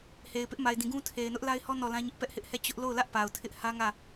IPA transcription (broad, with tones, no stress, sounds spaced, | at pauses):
h e˨ ɪ̯ p ɪ˦ ʔ m a˨ ɪ̯ d ĩ˨ ɡ ũ˦ tʰ e˨ ɪ̯ n ʊ˦ ʔ l a˦ ɪ̯ h ɔ˦ n ɔ˦˨ l ã˦ ɲ ɪ˦ ʔ p ɛ˦ ʔ h ɪ˦ ʔ h ɛ˦˨ t͡ɕ ʊ˦ ʔ l o˦˨ ʊ̯ l ä˦ ʔ p a˨ ʊ̯ tʰ ɪ˦ ʔ h ä˦ ŋ ä˦˨